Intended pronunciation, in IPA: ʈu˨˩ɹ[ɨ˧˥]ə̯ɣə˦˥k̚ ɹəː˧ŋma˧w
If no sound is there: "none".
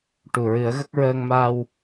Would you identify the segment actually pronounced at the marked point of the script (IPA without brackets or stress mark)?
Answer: ɨ˨˩˦